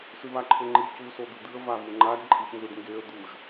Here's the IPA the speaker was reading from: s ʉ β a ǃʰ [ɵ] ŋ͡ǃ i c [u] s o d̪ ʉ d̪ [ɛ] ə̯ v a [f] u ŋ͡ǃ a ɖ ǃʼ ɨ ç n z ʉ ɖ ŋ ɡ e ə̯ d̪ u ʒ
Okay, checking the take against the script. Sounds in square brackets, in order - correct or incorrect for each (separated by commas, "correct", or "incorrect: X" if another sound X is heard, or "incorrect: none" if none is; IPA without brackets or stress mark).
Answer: correct, correct, incorrect: ɨ, incorrect: v